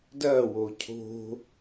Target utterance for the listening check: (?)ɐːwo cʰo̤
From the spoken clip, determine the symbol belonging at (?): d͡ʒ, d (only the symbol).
d